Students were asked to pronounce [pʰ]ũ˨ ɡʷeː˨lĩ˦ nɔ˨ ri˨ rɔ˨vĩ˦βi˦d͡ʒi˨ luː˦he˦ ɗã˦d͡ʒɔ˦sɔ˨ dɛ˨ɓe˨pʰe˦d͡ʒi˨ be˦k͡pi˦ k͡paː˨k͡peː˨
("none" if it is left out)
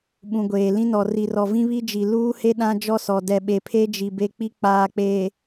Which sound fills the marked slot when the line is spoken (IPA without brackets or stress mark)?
ɓ